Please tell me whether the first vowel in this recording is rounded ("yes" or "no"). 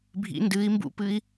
no